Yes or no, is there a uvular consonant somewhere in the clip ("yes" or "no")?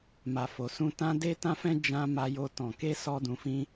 no